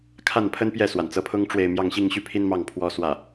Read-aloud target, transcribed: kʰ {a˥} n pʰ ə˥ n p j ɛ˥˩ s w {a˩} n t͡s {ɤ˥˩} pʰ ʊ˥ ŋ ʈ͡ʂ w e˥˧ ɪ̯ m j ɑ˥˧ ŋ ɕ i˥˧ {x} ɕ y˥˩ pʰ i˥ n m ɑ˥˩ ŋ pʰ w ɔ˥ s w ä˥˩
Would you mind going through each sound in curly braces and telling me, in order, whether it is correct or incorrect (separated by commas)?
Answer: incorrect, correct, incorrect, incorrect